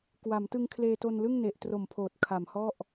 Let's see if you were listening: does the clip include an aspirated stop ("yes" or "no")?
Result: yes